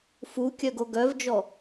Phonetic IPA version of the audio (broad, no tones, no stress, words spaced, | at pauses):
fukʲœɡo ɡœvd͡ʒɔ